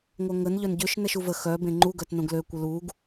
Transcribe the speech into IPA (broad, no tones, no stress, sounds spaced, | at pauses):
ŋʷ œ ŋ ə n ʎ œ n ɟ ø ʃ n ɛ ʃ u v ə x œ b ẽ ŋ͡ǃ u ɡ œ t n õ ɡ l ø kʷ ə l u ɡ